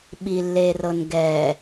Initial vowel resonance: oral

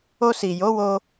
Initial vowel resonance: oral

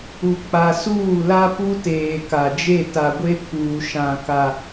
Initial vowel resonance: oral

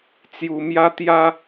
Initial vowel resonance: oral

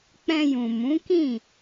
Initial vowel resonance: nasal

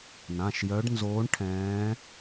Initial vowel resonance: nasal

